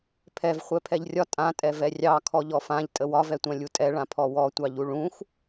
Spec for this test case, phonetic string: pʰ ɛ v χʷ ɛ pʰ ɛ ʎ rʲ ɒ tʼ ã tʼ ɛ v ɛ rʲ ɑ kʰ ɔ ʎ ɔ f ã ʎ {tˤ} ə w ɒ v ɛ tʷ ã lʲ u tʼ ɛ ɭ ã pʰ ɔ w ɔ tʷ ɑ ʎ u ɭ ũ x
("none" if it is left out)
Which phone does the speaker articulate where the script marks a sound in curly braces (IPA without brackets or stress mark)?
tʼ